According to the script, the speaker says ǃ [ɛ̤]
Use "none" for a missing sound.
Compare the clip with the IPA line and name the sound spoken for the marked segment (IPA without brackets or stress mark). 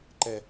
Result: ɛ